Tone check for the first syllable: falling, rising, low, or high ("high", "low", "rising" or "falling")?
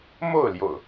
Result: falling